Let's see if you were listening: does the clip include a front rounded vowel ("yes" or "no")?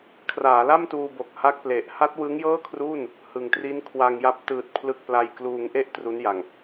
no